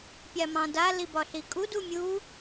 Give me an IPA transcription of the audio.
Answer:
pʲ a m ɑ̃ d a l i b ɒ ɬ i kʼ u d u mʲ u

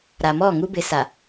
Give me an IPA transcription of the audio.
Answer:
ɾ a˨ m ɔ˦˨ ŋ u˦ b ɪ˨˦ s a˨

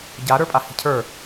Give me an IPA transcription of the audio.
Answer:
ɟ a ɾ ə˞ pʼ a h i̤ cʰ ə˞

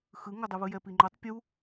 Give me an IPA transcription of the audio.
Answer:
x ɯ ŋ o dˤ ɯ β ɯ j ɛ p i ŋ͡ǃ o tˤ pʲ u

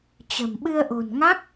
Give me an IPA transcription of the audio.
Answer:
t͡ɕ ə̤˨˩ m ɓ ɨ˧ ə̯ ʔ o̤˨˩ n ŋ a˦˥ k̚

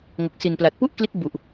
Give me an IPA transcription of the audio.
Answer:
ŋ o˨˩ k̚ s i˨˩ n p l a˨˩ t̚ p u˥˩ ʔ k l i˦˥ t̚ b u˨˩ ʔ

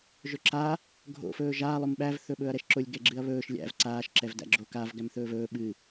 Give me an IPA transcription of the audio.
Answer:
ʒ ɵ ǁ a | ɡʱ o̰ f ɵː ʒ aː lˠ ʊ m ɓ æ v θ ɵ ɓ ɵː ɐ̯ ɾ ɛ ʃ ǁ ʊ lʲ ɡ ɛ ɡ͡ǁ ɨ ɐ̯ β ɵː ʃ lʲ æ̰ v ǀ aː ʃ ǁ ɛ v d æ̰ ɡ͡ǁ o k a v ɡ æ m θ ɵː v ɵː ɓ ɨ

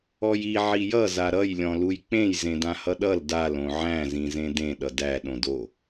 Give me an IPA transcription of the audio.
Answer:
ɔ j i ʕ i j ʌ z a ɾ ʌ j lʲ ɔ̃ l u j k͡p ẽ j z ẽ d ã h ʌ ɗ ʌ l d a l õ ʕ æ̃ z ĩ z ẽ d ẽ ɗ ʌ d æ ɗ õ d o

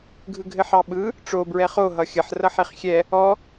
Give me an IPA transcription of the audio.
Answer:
ɡʱ ɯ ɡʱ ɘ ħ ɑ ɓ ɯ | ʈ͡ʂ o b ɹ ɛ χ o ɦ ʌ xʲ ə ħ r ʌ ħ e χ xʲ ɛ | ɔ

